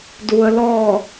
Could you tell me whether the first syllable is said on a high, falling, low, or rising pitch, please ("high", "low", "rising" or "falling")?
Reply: low